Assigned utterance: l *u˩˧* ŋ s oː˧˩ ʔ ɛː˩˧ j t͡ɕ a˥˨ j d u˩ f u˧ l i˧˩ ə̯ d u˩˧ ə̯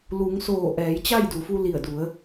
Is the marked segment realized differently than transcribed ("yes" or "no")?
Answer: no